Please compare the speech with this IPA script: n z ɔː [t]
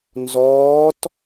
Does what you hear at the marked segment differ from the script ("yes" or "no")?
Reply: no